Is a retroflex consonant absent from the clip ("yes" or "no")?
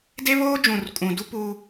yes